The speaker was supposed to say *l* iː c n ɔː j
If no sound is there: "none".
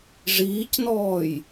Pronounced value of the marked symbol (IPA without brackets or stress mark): ʐ